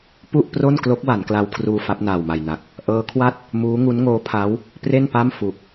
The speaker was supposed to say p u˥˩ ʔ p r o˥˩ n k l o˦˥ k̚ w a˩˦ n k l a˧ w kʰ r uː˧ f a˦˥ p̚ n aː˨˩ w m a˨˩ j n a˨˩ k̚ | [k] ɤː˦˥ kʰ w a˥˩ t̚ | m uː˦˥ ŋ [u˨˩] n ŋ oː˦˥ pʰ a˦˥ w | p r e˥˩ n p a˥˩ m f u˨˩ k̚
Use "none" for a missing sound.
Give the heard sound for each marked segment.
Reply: ʔ, u˦˥

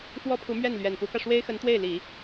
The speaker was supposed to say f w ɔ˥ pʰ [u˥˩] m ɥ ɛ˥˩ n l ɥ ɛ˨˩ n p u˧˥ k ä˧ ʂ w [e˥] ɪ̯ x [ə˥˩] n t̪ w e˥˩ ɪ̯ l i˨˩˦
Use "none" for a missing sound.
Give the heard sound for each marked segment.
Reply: u˧˥, e˥, ə˧˥

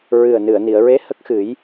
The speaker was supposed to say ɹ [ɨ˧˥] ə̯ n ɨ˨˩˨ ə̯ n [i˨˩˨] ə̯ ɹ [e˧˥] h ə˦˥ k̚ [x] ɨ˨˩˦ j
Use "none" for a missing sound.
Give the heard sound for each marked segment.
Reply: ɨ˨˩, i˨˩˨, e˧˥, x

